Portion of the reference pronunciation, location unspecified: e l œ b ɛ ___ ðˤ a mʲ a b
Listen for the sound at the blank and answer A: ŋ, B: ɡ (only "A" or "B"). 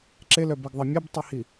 B